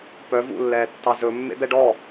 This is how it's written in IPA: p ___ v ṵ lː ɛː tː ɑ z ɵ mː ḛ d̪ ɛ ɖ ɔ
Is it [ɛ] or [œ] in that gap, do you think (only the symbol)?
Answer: œ